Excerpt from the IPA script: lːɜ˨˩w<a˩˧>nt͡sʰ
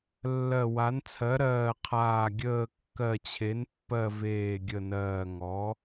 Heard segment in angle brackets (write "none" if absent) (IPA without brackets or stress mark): a˩˧